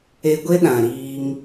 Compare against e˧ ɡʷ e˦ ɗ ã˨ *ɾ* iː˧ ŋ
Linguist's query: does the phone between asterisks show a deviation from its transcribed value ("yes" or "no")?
no